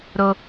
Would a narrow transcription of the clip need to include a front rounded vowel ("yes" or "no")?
no